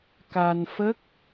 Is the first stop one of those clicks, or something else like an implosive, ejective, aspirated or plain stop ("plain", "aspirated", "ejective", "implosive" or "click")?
plain